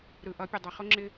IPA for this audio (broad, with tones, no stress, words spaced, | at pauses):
ɾɯ˨ʔʌ˨˦pʲʊ˨ dˤʌ˨χʊ˦ŋ͡ǁɪ˦